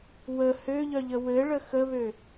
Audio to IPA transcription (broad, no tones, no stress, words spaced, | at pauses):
wə høʎœʎə wɘɭə xəβø